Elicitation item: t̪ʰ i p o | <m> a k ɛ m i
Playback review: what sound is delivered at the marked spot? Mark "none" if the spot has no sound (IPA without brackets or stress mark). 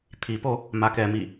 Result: m